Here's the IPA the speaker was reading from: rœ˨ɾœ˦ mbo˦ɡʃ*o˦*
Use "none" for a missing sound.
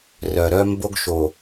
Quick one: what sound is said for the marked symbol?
o˨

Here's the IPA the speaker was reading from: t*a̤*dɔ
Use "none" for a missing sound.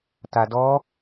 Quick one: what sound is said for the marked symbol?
a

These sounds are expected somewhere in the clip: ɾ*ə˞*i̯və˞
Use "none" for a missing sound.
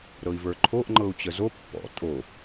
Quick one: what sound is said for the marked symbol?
ɤ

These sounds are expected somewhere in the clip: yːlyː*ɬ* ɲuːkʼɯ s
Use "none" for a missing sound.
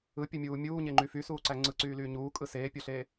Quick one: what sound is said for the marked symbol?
none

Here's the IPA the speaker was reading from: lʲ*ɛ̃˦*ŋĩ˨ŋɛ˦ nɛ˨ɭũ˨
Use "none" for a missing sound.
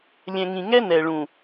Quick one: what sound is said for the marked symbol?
ɛ̃˨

